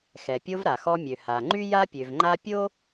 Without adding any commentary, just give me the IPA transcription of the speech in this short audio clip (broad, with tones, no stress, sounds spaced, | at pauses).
x ɛ˩ pʲ o˧ v ɾ a˩ x ɔ˧ mʲ ø˩ h a˩ ŋ͡ǃ y˥ j a˥ pʲ ø˩ v ŋ͡ǃ a˥ pʲ o˥